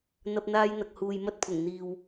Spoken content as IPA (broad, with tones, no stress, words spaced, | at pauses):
n̪ɐ˧p̚n̪aː˧jn̪ɐ˨k̚huː˨j mɐ˧t̚pʰʊ˨˩ŋ n̪iː˨w